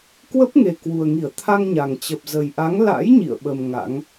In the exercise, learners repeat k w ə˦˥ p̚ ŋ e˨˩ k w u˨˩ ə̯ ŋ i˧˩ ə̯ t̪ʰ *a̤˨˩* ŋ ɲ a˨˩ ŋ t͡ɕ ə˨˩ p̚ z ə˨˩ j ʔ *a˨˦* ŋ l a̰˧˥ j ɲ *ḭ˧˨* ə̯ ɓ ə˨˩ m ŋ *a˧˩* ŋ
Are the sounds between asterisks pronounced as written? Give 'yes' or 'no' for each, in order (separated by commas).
no, yes, yes, no